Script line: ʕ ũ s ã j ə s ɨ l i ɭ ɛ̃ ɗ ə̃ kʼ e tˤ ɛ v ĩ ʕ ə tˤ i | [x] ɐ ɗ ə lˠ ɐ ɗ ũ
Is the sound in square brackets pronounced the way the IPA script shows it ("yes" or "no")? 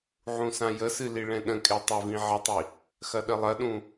yes